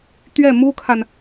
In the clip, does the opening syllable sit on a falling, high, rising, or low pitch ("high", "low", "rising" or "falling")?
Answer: falling